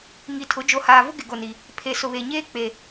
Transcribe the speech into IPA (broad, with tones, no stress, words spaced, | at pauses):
ŋi˨tʰʊ˨˦ d͡ʒo˨haː˨vʊ˦ ɡɪ˨ɡo˨ni˨ | pʰe˨ sʊ˨βe˨ɲeː˦ k͡pe˨